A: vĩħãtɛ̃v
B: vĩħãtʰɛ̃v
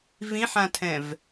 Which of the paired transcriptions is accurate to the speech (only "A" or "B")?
B